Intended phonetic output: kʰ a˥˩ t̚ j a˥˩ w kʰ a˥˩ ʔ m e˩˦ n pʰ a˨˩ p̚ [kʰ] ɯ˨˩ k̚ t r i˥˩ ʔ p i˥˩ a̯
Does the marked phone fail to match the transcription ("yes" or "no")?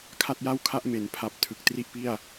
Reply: yes